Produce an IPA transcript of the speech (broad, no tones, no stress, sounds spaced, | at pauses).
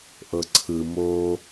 ʔ ɤ ǀʰ ɯ m o